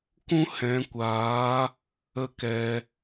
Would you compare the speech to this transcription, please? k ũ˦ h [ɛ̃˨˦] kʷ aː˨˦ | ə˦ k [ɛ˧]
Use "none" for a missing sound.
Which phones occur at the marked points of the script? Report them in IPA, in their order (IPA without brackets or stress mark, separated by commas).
ɛ̃˨˦, ɛ˧